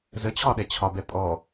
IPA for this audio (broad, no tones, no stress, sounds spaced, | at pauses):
z ə t͡ɕʰ ɒ ɗ ɛ t͡ɕʰ ɒ b ɛ pʼ ɔ